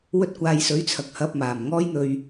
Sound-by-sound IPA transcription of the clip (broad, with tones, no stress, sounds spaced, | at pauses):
w ɵ˧ t̚ kʷ aː˨˧ j s ɵ˨˥ ɥ t͡sʰ ɐ˨ k̚ h ɐ˧ p̚ m aː˨˩ m ŋ ɔː˥ j n̪ ɵ˧ ɥ